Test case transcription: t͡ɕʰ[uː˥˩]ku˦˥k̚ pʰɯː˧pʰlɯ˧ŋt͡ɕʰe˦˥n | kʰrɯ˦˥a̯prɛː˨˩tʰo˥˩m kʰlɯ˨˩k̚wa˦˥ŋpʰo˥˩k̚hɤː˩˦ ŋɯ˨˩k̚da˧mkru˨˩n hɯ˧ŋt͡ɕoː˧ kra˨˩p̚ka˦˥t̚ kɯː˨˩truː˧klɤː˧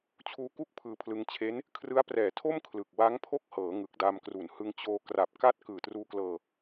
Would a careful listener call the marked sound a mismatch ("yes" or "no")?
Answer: yes